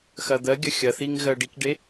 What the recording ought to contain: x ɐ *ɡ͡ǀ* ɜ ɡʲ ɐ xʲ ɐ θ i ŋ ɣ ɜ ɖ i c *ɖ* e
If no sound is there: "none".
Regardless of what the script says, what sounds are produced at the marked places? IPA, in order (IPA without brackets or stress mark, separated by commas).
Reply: d̪, ɖ